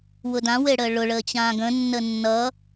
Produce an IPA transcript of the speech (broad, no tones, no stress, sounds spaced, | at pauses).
w ʊ d ã w e ɽ əː ɭ ʊ ɭ əː t͡ɕ ãː ɡ ə̃ nː ə nː ʌ